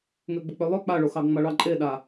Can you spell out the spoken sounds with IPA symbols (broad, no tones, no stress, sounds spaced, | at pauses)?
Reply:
ŋ ø ɡ͡b ə k͡p ø lˠ ø k͡p a ɭ o x ɑ ɡ ŋ͡m a ɭ ɑ ǃʼ e ɗ a